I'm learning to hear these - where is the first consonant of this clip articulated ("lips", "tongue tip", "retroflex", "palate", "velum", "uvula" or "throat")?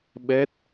lips